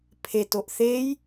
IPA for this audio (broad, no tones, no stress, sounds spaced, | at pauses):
pʰ e t o ʔ θ e j